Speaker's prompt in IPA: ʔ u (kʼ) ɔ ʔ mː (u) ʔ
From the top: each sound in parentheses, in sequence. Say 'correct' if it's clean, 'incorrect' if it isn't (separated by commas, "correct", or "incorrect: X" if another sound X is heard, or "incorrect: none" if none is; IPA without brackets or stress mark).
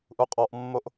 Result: incorrect: qʼ, incorrect: o